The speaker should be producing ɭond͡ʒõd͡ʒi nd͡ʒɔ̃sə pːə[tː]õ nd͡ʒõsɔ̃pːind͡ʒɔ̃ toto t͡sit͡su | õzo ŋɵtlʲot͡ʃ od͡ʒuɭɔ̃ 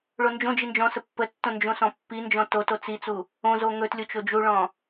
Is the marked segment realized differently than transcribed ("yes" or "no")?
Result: no